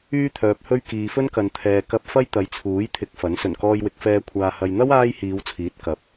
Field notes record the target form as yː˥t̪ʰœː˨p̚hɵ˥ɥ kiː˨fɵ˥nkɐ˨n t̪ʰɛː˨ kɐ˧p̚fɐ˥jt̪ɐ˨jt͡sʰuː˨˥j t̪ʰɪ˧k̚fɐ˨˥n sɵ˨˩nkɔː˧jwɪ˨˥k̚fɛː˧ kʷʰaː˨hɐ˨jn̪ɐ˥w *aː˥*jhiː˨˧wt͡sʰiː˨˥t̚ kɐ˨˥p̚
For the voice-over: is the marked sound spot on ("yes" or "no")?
yes